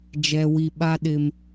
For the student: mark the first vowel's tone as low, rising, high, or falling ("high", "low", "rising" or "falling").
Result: low